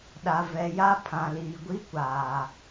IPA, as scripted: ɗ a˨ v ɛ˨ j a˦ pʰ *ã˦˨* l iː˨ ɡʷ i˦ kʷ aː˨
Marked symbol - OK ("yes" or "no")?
no